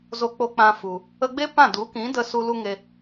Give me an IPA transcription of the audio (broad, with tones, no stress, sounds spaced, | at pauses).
z o˧ k͡p o˧ k͡p ã˧ f u˨ | ə˧ ɡ͡b e˦ p ã˦˨ d u˨˦ k ĩ˨˦ d ə˧ s u˧ l u˦ ŋ e˧